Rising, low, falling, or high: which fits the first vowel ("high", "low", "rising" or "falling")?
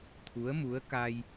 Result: rising